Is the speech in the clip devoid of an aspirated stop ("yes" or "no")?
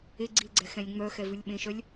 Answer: yes